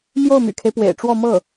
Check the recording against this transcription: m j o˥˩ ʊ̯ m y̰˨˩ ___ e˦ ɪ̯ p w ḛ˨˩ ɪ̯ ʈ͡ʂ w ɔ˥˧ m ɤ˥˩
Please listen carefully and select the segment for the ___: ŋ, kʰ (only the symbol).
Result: kʰ